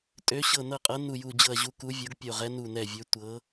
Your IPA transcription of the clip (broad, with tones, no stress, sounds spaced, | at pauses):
tʼ ø˨˦ ɕ ɤ˧˩ n ɤ˧˩ qʼ ɤ˨˦ n u˧˩ j u˧˩ d͡ʑ ɤ˧˩ ɐ̯ ʑ u˨˦ k u˨˦ vʲ o˨˦ ɡ pʲ o˧˩ ʁ ɛ˨˦ n u˧˩ n ɛ˧˩ vʲ ø˨˦ tʷ ɤ˨˦